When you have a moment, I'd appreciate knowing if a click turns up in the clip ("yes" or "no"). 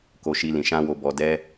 no